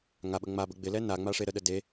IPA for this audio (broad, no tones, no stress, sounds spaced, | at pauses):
ŋ a ɓ ə ŋ͡m a b ə ɡ͡b ɪ l ɛ n a ŋ͡m a ʂ e ɾ ə ɗ ə d e